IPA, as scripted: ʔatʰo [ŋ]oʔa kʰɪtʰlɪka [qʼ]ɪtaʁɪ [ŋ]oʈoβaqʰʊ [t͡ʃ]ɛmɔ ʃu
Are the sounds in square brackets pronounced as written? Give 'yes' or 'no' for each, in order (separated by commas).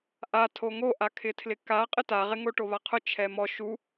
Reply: yes, yes, yes, no